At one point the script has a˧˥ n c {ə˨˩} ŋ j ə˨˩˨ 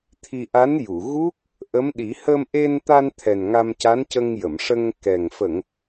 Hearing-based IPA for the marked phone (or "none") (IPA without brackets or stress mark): ə˧